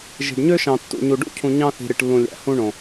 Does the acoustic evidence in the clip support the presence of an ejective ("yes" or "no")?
no